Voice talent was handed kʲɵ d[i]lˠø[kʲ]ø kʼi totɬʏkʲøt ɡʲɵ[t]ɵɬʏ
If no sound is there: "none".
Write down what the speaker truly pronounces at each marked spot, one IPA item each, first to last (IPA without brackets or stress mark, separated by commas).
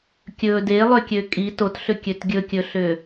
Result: e, kʲ, kʲ